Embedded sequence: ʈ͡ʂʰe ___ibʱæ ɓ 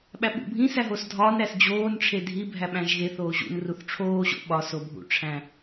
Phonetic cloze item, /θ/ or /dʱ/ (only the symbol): dʱ